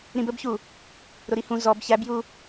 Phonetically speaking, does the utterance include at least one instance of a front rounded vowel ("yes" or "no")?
no